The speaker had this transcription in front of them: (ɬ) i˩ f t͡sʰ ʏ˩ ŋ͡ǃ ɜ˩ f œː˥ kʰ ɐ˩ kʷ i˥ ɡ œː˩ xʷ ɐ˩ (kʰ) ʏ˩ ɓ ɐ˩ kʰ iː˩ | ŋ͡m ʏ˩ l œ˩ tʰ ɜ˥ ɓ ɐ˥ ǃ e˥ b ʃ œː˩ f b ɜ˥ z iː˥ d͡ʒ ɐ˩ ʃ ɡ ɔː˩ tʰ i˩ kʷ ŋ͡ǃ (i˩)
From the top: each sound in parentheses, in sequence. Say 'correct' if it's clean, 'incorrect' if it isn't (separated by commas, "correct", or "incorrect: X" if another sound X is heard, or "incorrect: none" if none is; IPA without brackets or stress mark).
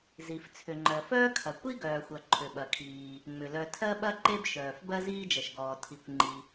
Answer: incorrect: z, incorrect: ǃʰ, correct